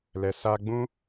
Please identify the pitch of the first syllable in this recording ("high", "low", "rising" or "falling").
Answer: low